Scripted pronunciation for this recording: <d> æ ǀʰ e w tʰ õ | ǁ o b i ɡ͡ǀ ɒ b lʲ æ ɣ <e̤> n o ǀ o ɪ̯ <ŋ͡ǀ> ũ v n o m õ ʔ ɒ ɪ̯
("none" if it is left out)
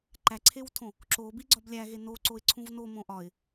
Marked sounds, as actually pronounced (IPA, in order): ǃ, e, ǀʰ

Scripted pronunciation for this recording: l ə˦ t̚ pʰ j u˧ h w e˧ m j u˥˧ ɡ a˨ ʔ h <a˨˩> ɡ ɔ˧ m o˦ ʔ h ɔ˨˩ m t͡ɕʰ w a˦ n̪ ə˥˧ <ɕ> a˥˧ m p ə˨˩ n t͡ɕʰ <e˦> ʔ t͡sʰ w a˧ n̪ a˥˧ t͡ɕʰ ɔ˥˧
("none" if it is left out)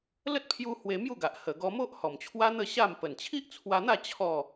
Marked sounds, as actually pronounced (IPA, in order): ə˨˩, ɕ, i˦

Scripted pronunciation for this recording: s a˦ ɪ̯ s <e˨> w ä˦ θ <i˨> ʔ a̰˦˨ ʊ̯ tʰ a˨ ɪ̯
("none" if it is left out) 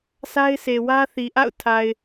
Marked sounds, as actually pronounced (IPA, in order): e˨, i˨

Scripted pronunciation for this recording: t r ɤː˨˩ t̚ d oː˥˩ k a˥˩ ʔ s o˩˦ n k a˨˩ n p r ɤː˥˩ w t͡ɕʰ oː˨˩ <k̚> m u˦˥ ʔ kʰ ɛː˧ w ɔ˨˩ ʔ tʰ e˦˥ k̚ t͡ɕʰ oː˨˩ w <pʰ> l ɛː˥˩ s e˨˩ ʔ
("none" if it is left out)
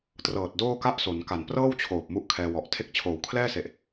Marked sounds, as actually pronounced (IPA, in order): p̚, kʰ

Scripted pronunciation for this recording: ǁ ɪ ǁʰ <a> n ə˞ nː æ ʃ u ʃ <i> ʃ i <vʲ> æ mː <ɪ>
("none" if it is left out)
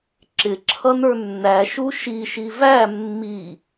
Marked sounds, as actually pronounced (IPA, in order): ʌ, i, v, i

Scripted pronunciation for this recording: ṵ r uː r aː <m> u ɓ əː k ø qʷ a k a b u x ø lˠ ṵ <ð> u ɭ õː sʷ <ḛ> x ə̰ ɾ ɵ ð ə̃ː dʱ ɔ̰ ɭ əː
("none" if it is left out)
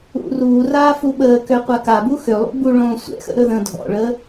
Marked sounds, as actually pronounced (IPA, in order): f, b, ɛ̰

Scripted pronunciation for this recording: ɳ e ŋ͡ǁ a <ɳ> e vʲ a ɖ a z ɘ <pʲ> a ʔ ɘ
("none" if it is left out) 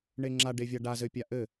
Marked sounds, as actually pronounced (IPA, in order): ɖ, pʲ

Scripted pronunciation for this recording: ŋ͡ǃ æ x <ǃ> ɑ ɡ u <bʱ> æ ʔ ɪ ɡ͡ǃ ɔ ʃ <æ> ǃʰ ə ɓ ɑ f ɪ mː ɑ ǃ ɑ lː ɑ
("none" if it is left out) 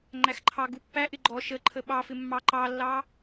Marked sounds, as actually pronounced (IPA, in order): ǃʰ, pː, ə

